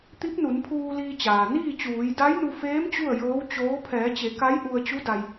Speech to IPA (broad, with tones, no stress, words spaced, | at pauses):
t̪i˧˥p̚nu˩˧npʰuː˧ liː˧t͡ɕaː˩ niː˥˨t͡ɕuː˩˧j da˧˥jnu˧feː˧˥m t͡ɕu˥˨ə̯jɤː˧˥wt͡ɕoː˧˥ pʰɛː˩˧t͡ɕe˩˧ ka˧˥jʔu˧ə̯ t͡ɕu˧˥da˧j